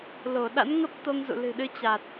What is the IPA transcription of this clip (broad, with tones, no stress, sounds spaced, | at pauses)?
l o˧˩ ɗ a̰˧˥ n ŋ ə˦˥ p̚ t̪ o˧ ŋ z ṵ˧˨ l ɨ̤˨˩ ɗ ɨ˨˦ t͡ɕ a˨˩ t̚